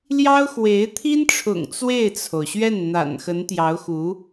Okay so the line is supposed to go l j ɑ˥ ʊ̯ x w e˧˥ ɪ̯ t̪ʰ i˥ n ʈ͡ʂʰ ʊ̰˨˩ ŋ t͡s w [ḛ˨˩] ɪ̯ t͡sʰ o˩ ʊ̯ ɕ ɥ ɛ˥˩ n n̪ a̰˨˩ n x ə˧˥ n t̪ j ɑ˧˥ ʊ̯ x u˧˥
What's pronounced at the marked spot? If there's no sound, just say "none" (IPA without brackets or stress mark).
e˥˩